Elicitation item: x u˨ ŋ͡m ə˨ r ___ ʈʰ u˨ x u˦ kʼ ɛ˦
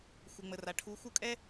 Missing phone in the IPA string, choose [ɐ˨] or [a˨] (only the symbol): a˨